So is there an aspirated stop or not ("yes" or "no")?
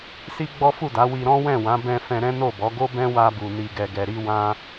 no